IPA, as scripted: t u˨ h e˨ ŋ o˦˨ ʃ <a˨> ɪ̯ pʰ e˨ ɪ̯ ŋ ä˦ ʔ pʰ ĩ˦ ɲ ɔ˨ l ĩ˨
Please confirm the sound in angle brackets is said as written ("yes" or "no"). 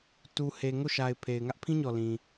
yes